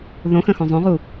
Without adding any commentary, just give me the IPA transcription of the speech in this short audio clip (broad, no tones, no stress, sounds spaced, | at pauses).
ð õ x ə̃ x õ zˤ õ ʁ u